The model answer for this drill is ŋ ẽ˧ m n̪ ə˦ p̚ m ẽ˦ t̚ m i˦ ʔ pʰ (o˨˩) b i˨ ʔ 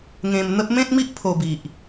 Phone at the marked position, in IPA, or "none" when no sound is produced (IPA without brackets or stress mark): o˧